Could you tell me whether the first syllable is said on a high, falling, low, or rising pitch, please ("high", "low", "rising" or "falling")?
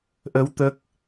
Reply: rising